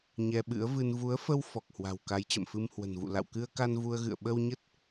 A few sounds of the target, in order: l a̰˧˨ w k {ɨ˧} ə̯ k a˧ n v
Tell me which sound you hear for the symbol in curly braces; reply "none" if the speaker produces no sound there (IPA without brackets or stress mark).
ɨ˧